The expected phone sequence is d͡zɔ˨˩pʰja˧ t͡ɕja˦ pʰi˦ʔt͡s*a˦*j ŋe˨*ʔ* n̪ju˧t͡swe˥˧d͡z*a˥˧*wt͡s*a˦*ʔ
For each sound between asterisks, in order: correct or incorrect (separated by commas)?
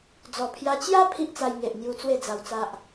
incorrect, correct, incorrect, correct